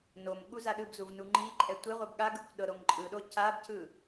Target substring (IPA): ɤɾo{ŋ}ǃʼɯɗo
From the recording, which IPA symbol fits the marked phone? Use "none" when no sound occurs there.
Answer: ŋ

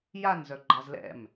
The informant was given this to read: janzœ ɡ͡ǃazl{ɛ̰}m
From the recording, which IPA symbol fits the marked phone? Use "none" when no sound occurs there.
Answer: ɛ̰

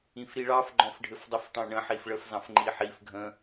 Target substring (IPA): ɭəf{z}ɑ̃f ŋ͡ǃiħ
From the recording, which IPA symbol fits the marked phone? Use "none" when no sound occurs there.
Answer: z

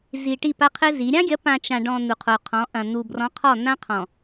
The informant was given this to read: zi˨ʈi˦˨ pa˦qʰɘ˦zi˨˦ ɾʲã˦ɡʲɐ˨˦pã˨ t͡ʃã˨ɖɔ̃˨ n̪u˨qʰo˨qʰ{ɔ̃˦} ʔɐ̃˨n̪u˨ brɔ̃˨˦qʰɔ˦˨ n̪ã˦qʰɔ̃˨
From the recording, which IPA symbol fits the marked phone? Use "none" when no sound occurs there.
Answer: ɔ̃˨˦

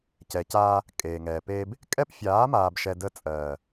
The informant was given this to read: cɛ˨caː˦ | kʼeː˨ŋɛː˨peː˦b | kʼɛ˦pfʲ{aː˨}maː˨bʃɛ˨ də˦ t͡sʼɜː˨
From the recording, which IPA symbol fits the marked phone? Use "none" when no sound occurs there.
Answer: aː˨˦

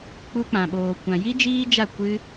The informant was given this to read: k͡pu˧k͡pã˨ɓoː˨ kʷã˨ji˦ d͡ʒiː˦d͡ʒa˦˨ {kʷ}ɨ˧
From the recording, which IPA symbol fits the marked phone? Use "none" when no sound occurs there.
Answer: kʷ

